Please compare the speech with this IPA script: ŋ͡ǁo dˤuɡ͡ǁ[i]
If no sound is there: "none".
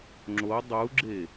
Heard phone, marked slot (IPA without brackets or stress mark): e